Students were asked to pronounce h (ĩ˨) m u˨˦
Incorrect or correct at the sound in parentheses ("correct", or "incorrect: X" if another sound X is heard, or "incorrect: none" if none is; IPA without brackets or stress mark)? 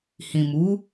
correct